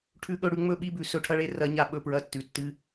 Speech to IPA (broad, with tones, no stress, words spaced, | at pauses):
ʈʰʉ˨ɠɵ˨ ɽʉ˦ŋ͡mɵ˦ɓi˦bʉ˨ sɵ˨ʈʰɐ˦ɭe˦ rɐ˨˦ɲa˨ɓɵ˦˨ pɹɐ˦tːʉ˨tːɨ˦